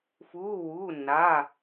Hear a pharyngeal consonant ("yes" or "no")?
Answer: no